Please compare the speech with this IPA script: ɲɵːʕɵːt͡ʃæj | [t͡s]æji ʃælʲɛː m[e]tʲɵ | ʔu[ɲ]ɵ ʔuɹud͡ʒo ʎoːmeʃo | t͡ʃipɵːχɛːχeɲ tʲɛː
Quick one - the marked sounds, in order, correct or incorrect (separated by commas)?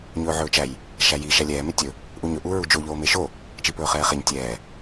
incorrect, correct, correct